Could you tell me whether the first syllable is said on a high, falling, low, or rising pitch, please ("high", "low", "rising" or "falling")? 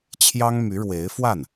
high